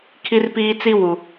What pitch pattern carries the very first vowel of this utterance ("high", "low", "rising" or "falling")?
high